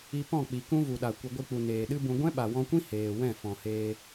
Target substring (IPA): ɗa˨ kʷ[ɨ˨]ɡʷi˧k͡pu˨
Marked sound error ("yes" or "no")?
no